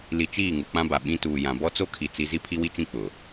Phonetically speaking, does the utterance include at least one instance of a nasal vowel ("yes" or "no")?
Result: yes